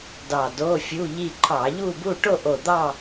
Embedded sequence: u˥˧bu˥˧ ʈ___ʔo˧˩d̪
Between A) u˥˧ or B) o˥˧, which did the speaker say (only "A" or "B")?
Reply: B